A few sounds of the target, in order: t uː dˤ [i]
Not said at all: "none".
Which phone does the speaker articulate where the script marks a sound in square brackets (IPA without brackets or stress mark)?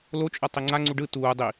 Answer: i